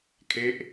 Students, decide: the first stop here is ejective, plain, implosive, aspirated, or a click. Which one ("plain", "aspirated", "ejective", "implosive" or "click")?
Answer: aspirated